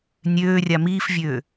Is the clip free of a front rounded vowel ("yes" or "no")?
no